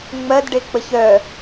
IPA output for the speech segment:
ŋ͡m ɜ d ɖ e k͡p ə ç œ

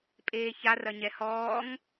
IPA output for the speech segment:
pʼ eː ç a r ɐ ɲ ɛ h ɔː ŋ

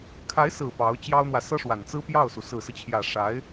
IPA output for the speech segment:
kʰ a˧˥ ɪ̯ s ɹ̩˨˩ p ɑ˧˥ ʊ̯ t͡ɕ j ɑ˥ ʊ̯ n̪ w ä˨ s ɤ˥ ʂ w a˨˩ n t͡s ɹ̩˥ p j ɑ˥˩ ʊ̯ s u˩ s ɹ̩˨˩ s ɹ̩˦ t͡ɕʰ j ä˨˩ ʂ a˧˥ ɪ̯

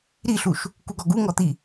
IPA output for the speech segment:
ɾ i ɬ u ʃ | k u ɡ ɔ ɡ u ŋ ɔ t̪ i

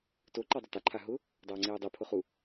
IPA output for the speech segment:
t o ǃ a dˤ ʊ t a ǃʰ a ɦ ʊ | dˤ aː ŋ͡ǀ eː dˤ i pʰ ʊ χ u

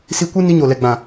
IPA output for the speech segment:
s i˧ kʷ ɨ˦ n i˧ ɲ o˨ l ɛ˨ ɡ͡b ã˨

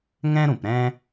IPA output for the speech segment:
ŋ ɛ̃˦ ɾ ũ˨ p ɾ ɛ̃˦

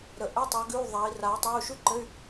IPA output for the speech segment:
ɾ ə˨˥ ʔ ɘ˧˥˧ tˤ ə˨˥ ɡ ʉ˧˥˧ u̯ ðˤ a˨˥ i̯ r a˨˥ u̯ tˤ a˧˥˧ u̯ ʃ ʉ˥ ǃ ɘ˧˥˧ y̯

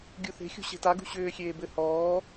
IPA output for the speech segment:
ɡʲ u θ e̤ xʲ ṳ ɕ e̤ t a ɡ ṳ ɕ ʏː xʲ eː b ɘ h ɔː

